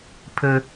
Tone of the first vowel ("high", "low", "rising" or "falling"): high